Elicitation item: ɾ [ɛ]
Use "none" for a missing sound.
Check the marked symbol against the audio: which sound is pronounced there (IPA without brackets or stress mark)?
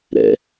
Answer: ɛ̰